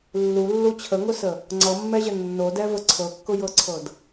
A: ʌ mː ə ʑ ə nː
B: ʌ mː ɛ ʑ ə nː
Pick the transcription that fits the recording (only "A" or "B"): B